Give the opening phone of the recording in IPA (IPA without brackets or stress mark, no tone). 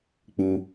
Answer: k͡p